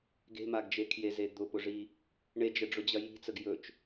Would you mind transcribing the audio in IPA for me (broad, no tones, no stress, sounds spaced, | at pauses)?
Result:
ɡ e̤ m a ɡ d͡ʒ e kʰ j e z e d̪ ʊ p ʊ ʐ i | ɳ e d͡ʒ ə ɖ͡ʐ ʊ d͡ʑ ɐ j i̤ t͡s ə ɡ j ɵ t͡ʃ